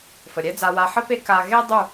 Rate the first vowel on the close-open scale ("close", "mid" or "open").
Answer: mid